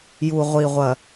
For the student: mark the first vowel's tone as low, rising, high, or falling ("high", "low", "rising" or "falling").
low